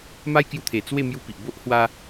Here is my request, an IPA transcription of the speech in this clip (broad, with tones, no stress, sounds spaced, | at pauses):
m a˦ j k j u˧ t̪ʰ e˨˩ t͡s w e˥˧ m j u˦ p i˨ ʔ b o˦ ʔ h w a˧